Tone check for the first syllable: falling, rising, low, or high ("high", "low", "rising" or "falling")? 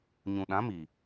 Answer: low